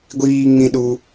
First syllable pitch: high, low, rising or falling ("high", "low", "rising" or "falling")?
high